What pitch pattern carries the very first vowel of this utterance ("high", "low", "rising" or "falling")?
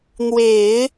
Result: low